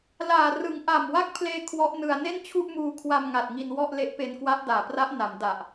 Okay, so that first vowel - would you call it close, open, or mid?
open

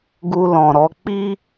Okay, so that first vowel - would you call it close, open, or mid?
close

